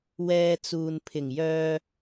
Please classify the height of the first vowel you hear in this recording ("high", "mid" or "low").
mid